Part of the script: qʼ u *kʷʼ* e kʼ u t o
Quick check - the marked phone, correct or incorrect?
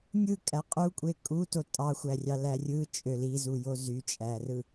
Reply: correct